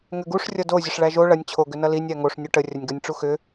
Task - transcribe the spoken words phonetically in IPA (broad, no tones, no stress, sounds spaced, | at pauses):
ŋ ʏ ɡ u ʂ rʲ ʌ d o zʲ ə ʂ ɭ æ ʒ o ɭ ɐ nʲ t͡ɕʰ o ɡ ʏ n ʌ l i nʲ æ ŋ o ʂ nʲ o ʈ ə rʲ ɐ nʲ ɡ ɐ nʲ ʈ͡ʂ u x ʏ